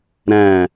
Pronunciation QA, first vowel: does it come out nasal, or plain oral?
nasal